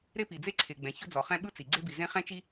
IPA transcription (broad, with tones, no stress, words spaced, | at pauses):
ɾe˥pi˩d͡ze˥ ǀʰe˩ɡ͡bɛ̃˩ çɵ˥d͡zɔ˩χɛ̃˥ ɓɯ˥t͡si˩ ɡ͡ǀe˥bi˩zẽ˥ χɛ̃˥t͡ʃi˥